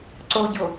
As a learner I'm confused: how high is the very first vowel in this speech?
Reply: mid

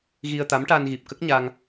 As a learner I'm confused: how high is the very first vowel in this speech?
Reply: high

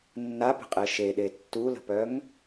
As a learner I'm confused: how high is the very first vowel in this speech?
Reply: low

